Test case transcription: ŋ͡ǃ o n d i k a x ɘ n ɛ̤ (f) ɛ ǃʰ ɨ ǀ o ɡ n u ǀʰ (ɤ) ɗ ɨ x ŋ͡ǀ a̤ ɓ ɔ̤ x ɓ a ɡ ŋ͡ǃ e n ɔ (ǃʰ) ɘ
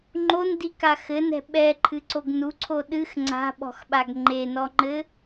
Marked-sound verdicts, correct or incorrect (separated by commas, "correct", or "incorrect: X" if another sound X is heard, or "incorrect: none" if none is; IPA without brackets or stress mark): incorrect: ɓ, incorrect: o, incorrect: ŋ͡ǃ